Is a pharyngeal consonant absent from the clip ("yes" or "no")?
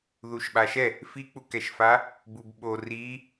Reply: yes